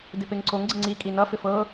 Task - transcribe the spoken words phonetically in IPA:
d ɪ p e ŋ ǀ o ŋ ɡ͡ǀ ɪ ŋ͡ǀ i kʼ i n ʌ f ɪ f ɤ

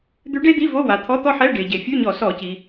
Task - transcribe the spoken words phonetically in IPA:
d̪ ʉ˧˥ ɖ e˥ d̪ i˧˥˧ v o˧˥˧ w a˩ t̪ʰ ɔ˧˥˧ t̪ ɔ˥ ħ ɛ˧˥˧ ɖ e˩ ɟ e˩ fʲ ʉ˧˥˧ ɲ ɔ˧˩˧ s ɔ˧˩˧ c i˩

